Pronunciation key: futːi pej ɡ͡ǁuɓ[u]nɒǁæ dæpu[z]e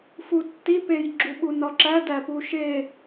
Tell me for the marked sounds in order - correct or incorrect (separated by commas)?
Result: correct, incorrect